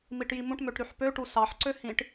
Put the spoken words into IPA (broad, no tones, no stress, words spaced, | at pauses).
miʈjimũʈmøʈ ɾyħpøʈu sɑħǀø hĩʈ